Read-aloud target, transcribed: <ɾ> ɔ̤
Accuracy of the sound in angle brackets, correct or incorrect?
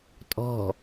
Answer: incorrect: tʼ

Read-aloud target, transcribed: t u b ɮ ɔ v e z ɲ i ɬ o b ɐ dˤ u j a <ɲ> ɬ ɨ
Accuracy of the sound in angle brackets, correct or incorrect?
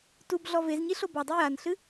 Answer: incorrect: n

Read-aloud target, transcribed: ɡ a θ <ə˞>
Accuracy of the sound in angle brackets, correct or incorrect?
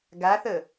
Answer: incorrect: ə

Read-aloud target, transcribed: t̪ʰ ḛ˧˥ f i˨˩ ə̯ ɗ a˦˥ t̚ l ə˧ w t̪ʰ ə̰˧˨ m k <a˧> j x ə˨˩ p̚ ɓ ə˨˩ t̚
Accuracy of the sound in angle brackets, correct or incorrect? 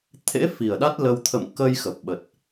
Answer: incorrect: ə˧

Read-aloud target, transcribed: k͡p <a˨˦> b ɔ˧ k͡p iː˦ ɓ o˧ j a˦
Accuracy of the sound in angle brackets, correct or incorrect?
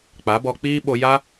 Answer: correct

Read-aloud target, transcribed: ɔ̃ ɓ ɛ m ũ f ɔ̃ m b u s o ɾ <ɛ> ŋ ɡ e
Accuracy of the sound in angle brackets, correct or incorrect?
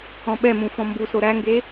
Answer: incorrect: æ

